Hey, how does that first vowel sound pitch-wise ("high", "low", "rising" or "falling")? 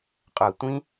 low